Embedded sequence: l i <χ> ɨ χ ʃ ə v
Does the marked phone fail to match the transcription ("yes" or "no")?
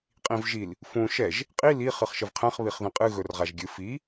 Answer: no